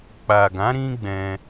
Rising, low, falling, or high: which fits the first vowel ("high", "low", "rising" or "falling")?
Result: low